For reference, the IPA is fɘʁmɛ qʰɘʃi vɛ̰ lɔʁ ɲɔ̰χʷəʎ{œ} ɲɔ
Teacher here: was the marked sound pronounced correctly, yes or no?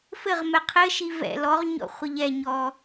no